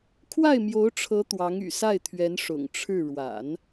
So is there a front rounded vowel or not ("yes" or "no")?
yes